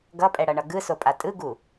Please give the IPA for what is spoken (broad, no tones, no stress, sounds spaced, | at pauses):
ɡ ʌ pʼ ɛ ɽ ʌ ɳ ʌ ɡ ɯ s o pʼ a tʼ ɯ ɡ u